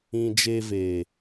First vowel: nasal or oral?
nasal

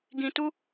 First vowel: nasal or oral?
nasal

